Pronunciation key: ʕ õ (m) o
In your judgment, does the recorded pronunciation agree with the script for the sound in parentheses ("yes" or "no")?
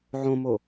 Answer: yes